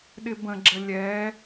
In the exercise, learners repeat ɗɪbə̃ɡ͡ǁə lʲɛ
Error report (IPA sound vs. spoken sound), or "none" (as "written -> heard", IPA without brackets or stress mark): none